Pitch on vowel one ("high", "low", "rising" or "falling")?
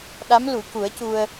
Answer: rising